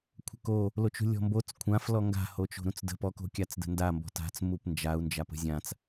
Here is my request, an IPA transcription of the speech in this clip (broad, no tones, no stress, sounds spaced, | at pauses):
kʷʰ ə̤ k o | l o t͡ʃ ṳ lʲ ɔ̤ m b o t͡s kʷʰ ã f l ɔ ŋ ɡ a̤ h o t͡ʃ o̤ ɾ ũ t͡s d ə̤ p ɔ k o̤ kʲ a t͡s d ə̤ n d a m b ɔ̤ t a̤ t͡s m u p n d͡ʒ a u̯ n d͡ʒ a p ə̤ zʲ ã t͡s